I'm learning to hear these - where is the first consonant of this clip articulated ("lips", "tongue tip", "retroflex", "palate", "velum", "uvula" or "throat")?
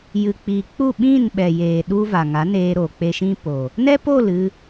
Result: palate